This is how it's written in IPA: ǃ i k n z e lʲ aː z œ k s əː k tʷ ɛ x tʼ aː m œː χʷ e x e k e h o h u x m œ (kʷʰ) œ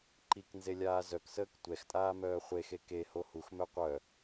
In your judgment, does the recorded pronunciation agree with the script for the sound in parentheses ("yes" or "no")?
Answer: no